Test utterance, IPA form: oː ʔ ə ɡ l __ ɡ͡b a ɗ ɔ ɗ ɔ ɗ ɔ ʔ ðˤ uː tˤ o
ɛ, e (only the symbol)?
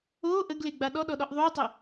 e